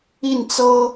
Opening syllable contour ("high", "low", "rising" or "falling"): falling